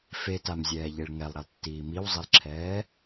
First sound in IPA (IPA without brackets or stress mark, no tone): f